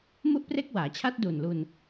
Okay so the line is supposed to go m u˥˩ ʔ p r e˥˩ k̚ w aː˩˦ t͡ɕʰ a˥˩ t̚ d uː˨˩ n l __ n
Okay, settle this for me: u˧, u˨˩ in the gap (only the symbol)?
u˧